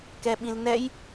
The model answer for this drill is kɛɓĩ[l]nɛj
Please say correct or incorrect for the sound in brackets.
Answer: correct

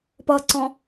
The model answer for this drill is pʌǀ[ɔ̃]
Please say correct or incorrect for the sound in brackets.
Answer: correct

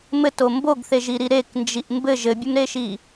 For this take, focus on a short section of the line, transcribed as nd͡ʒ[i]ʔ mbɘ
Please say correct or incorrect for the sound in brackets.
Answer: correct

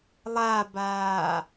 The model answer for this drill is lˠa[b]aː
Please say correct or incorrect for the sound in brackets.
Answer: correct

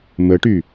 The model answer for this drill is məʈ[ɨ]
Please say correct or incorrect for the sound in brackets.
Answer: incorrect: y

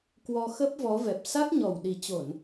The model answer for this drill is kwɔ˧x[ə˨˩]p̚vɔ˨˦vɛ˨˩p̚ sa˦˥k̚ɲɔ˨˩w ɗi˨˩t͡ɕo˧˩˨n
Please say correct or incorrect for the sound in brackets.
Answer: incorrect: ə˦˥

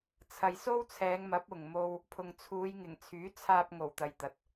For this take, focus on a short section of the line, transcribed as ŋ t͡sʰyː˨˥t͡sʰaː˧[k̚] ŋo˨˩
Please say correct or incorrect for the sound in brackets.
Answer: incorrect: p̚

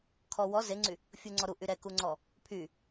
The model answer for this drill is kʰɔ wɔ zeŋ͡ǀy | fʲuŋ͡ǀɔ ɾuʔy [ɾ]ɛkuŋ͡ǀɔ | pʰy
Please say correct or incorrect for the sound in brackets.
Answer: correct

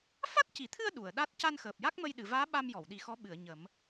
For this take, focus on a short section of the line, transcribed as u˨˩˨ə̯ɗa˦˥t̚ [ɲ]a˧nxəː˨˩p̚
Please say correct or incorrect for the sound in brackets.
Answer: incorrect: c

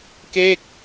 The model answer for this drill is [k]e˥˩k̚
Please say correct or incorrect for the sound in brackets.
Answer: correct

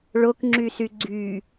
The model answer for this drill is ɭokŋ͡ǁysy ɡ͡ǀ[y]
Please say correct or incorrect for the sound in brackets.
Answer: correct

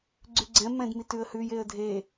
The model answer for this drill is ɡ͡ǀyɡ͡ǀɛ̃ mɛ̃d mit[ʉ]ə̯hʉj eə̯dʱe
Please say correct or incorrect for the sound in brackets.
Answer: correct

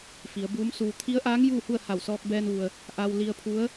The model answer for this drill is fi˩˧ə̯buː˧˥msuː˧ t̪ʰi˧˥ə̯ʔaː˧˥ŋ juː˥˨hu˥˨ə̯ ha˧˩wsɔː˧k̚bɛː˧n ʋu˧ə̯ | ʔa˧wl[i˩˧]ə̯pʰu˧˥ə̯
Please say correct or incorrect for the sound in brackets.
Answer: incorrect: i˧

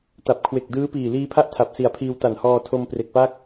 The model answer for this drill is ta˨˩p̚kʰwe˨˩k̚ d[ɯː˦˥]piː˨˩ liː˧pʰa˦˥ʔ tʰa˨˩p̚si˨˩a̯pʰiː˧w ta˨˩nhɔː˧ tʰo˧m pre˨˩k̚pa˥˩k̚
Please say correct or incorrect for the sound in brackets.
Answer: correct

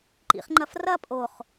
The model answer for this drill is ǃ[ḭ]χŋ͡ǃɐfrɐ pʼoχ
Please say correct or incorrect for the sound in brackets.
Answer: correct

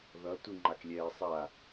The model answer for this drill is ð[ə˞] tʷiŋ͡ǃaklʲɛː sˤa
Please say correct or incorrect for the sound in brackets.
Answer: incorrect: ʌ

